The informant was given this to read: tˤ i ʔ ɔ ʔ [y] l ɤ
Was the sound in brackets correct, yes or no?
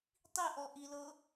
no